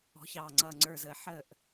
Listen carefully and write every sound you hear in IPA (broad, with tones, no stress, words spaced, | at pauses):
ɔ̤˨˦çɑː˨ŋ͡ǀʌː˨ ŋ͡ǀə˞˨zəː˨ħəː˦˨ʔ